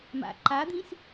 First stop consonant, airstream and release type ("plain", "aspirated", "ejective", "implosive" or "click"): click